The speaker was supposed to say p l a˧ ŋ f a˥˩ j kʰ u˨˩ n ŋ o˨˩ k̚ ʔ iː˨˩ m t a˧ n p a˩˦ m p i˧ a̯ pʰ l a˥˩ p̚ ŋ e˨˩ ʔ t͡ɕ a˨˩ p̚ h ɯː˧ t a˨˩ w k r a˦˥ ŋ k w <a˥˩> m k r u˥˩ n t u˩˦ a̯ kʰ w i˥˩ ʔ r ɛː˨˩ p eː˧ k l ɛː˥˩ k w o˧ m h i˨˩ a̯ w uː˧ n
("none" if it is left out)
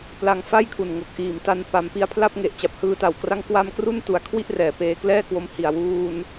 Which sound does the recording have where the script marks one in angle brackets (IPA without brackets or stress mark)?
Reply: a˥˩